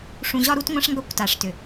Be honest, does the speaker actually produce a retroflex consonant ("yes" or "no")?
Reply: yes